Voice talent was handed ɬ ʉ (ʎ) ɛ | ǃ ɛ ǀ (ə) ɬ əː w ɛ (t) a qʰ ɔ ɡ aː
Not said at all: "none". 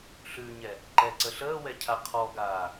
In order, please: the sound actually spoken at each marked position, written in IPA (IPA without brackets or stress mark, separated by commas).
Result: ɲ, ə, cʰ